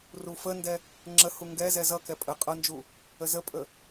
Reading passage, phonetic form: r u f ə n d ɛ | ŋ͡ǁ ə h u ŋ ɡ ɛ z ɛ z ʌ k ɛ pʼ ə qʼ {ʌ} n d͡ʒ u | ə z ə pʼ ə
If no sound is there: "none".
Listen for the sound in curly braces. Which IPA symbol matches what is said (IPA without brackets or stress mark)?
ʌ